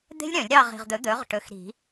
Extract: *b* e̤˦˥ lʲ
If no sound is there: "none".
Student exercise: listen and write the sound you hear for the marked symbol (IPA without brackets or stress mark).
d̪